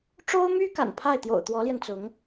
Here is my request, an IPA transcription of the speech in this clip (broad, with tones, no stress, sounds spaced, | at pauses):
ʈ͡ʂ o˥ ʊ̯ m y˥ k a̰˨˩ n pʰ a˥˩ ɪ̯ t̪ j o̰˨˩ ʊ̯ t̪ w ɔ˧˥ l j ɛ˧ n t͡s ʊ˧˥ ŋ